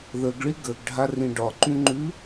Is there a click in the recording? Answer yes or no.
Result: yes